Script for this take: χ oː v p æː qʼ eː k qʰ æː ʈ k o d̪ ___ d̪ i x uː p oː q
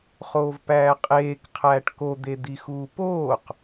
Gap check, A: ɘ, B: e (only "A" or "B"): B